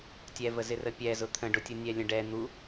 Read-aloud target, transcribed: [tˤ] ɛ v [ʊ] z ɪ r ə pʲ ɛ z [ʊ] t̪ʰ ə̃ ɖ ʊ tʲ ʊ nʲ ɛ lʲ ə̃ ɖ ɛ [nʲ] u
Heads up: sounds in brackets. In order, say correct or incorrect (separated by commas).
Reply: incorrect, incorrect, correct, incorrect